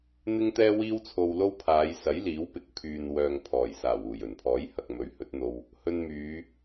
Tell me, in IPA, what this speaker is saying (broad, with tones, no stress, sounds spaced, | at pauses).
n̪ ɪ˥ ŋ t̪ ɛː˥ w iː˥ w t͡sʰ o˧ w l o˥ w pʰ aː˨˧ j s ɐ˨˥ j l iː˨˥ w p ɪ˨ k̚ pʰ yː˨ n w œː˨ ŋ pʰ ɔː˨˩ j s aː˨˩ w uː˨˩ j ɵ˨˩ n pʰ ɔː˨˥ j h ɐ˨ k̚ m ɵ˨˥ ɥ h ɵ˨˥ t̚ n̪ o˧ w | h ɵ˧ n m yː˨˧